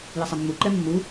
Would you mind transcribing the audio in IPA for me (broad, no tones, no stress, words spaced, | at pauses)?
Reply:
jɪsˤɪmːuǃɛ mːu